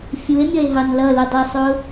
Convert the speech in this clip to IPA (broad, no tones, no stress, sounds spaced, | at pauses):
fʲ u e̯ mʲ ʌ e̯ ɦ ɑ n l ʌ l u dˤ ɪ sˤ ʊ